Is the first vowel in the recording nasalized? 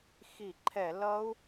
no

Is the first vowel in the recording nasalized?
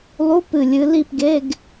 no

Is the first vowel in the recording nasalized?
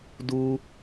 no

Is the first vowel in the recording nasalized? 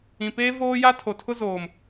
yes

